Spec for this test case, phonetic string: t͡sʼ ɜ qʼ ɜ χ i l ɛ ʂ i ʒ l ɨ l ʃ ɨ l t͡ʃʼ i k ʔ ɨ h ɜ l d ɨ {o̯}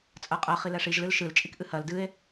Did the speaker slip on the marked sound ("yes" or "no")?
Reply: yes